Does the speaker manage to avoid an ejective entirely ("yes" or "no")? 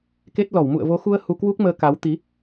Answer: yes